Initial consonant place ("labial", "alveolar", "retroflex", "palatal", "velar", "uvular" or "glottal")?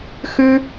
velar